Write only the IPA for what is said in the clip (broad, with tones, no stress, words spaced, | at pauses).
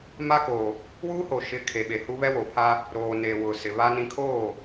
ma˦koː˨ | wuː˦ho˨ ʃɪ˨˦ kʰe˨ɓe˨hu˦ βɛ˦wo˨pʰaː˦ | ɾoː˨neː˨ wʊ˨ sɪ˨ βa˦nĩ˦ kʰoː˦˨